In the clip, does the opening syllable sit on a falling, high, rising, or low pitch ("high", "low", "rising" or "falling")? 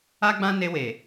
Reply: high